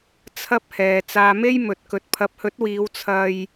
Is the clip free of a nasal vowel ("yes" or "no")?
yes